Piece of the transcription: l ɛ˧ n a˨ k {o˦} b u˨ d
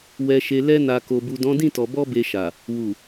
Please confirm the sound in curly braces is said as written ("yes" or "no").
no